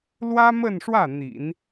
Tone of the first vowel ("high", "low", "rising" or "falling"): high